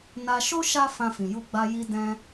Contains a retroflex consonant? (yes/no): no